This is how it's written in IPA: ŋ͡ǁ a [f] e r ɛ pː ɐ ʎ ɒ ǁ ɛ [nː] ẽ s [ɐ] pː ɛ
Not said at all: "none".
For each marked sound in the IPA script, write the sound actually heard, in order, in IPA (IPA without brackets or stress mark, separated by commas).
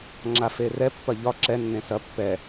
f, nː, ɐ